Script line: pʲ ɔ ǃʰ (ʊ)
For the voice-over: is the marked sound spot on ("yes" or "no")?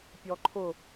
yes